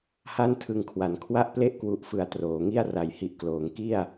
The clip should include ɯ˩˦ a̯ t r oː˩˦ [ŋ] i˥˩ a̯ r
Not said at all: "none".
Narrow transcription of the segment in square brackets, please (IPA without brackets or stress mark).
ŋ